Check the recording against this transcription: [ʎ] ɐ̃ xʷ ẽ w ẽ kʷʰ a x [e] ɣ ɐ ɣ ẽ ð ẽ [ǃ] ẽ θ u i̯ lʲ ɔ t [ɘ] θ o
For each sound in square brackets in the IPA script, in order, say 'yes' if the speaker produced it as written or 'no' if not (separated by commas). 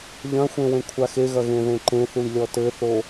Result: yes, yes, yes, yes